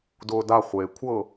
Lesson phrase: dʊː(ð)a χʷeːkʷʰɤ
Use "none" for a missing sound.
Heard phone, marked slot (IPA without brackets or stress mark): d